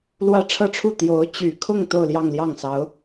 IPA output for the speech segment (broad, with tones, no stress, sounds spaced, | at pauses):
l w ä˥ ʈ͡ʂʰ ɤ˥ ʈ͡ʂʰ u˥˩ t̪ j o˧˥ ʊ̯ t͡ɕ y˨˩ kʰ ʊ˥˧ ŋ t̪ o˥˧ ʊ̯ l j ɑ˥˧ ŋ l j ɑ˥˩ ŋ s ɑ˧˥ ʊ̯